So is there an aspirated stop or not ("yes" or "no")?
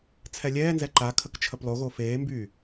yes